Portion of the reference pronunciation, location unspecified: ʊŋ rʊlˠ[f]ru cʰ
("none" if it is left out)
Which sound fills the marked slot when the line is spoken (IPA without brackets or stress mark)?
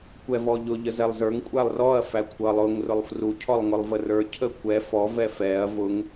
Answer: f